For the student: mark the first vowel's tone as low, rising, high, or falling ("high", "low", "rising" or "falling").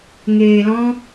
low